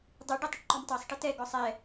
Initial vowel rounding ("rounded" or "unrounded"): unrounded